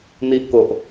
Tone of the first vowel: high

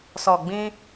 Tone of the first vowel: low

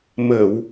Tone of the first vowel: low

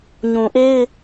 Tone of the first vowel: low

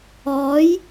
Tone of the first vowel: rising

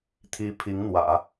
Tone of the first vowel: high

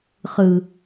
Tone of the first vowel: low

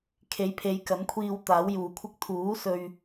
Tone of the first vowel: rising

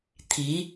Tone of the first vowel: rising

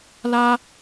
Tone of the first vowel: high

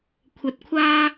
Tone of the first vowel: rising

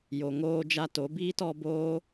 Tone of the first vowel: low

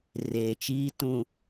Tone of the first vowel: low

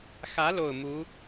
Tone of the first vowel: rising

